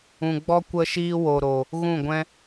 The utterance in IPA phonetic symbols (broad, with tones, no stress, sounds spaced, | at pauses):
ũ˨ ɡ͡b ɔ˦ kʷ ə˧ ʃ iː˧ w o˨ ɾ o˨ | ɣ ũ˦˨ ɡʷ ɛ̃˦